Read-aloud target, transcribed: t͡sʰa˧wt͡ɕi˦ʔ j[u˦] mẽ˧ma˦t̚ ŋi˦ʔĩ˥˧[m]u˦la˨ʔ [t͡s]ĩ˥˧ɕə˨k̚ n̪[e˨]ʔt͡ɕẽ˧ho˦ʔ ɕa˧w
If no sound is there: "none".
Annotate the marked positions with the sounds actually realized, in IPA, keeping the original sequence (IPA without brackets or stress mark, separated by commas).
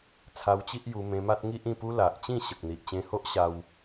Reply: u˧, p, t͡ɕ, i˨